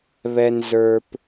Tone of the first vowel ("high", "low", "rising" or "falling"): high